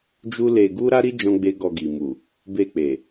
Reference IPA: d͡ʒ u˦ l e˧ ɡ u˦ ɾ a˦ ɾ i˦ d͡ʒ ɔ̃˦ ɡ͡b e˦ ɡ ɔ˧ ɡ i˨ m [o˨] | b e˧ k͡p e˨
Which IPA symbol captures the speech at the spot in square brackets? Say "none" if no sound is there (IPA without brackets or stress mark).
u˨